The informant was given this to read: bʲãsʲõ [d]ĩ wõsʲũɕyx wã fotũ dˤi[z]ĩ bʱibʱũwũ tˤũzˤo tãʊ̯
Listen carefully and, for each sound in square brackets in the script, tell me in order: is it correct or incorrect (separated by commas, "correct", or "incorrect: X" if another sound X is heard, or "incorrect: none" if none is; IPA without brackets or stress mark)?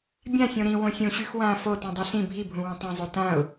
incorrect: ɾ, incorrect: ɬ